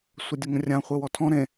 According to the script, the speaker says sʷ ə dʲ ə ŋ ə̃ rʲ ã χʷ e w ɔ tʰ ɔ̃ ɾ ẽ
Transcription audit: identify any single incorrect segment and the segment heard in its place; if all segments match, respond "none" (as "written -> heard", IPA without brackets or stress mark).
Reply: none